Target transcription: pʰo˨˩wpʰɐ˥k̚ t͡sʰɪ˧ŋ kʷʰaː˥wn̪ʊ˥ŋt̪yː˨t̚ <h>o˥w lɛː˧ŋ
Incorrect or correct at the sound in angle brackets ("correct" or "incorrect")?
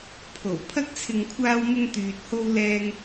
correct